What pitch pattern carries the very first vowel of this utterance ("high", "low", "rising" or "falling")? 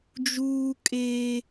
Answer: high